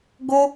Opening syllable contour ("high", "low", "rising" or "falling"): high